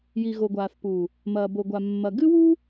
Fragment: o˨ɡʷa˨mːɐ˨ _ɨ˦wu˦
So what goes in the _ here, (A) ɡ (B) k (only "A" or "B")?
A